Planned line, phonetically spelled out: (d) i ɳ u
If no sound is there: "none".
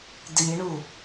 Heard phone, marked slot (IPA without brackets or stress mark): d